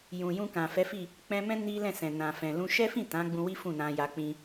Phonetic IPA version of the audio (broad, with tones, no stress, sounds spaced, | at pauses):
j ũ˨ j ũ˧ k ã˨ f ɛ˨˦ f i˦˨ | k͡p ɛ̃˧ m ɛ̃˦ n i˦ l ɛ̃˦˨ s ɛ̃˨ n ã˨ f ɛ̃˨ l ũ˧ ʃ ɛ˦ f ĩ˦˨ t ã˨˦ ɡ͡b ũ˧ w i˦ f ũ˦˨ n ã˧ j a˧ k͡p ĩ˧